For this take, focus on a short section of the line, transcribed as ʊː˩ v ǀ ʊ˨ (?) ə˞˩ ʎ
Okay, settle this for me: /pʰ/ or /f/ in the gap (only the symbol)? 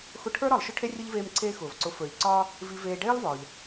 f